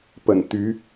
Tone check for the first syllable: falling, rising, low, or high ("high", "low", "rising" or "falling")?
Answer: low